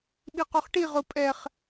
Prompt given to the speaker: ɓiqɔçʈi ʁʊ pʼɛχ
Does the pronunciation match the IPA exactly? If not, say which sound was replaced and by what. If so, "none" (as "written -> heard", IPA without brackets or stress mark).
ç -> χ